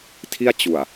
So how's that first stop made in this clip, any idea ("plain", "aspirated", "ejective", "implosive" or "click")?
aspirated